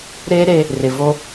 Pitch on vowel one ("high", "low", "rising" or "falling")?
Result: high